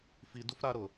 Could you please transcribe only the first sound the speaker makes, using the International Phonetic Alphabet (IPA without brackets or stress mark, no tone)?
f